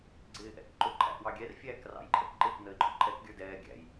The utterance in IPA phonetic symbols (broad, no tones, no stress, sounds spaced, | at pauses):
ɡ͡ǀ ɪː ʔ ɛ̰ k ǃ ʊ ǃʰ æ̰ ʔ w ɑ ɡʲ ɛ r fʲ æː k r ɑ̰ j ǃʰ ɛ̰ k ǃ ɪː k n ə ɪ̯ ǃʼ ʊ ǃʼ ɛ k ɡʲ ə˞ d ɛː ɡʲ æ̰ j